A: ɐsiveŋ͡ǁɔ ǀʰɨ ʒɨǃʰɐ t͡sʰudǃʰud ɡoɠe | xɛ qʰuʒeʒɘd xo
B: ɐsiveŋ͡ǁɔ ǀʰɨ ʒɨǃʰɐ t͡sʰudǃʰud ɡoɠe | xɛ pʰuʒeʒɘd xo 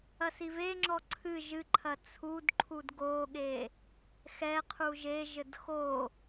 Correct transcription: A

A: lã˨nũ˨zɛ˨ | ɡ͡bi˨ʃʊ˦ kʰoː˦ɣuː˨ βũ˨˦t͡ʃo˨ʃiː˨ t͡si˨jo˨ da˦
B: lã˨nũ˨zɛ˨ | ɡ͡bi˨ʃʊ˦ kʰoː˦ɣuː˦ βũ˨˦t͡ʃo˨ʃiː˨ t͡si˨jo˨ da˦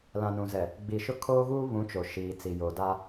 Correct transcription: B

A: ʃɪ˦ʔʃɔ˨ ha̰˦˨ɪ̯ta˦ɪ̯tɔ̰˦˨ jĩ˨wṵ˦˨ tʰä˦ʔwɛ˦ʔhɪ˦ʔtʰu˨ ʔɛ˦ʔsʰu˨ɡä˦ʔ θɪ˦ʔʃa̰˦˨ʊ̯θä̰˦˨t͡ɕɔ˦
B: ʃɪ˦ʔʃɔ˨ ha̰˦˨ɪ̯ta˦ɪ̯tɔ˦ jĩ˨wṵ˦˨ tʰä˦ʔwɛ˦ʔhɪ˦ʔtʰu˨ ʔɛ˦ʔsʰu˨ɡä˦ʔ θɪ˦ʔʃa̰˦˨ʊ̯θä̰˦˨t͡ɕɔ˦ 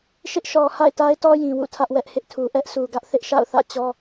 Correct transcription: B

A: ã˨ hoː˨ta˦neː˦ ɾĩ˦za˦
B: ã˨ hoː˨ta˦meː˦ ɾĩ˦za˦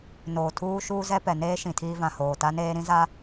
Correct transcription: A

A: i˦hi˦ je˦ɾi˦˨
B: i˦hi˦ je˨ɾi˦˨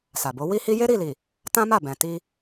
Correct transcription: A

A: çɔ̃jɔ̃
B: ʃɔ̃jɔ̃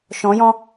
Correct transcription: B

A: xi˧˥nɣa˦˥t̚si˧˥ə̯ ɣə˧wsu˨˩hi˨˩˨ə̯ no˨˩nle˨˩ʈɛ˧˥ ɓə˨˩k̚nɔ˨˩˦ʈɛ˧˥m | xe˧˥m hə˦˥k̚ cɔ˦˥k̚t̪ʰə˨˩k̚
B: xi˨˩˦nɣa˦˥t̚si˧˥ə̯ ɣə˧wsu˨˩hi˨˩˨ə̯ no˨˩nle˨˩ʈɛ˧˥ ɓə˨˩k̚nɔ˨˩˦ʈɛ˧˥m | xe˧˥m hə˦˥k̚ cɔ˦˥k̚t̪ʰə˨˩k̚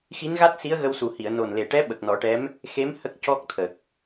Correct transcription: A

